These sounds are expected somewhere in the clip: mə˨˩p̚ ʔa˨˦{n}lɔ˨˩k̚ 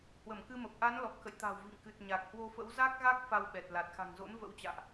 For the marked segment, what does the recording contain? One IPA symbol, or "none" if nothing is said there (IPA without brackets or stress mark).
n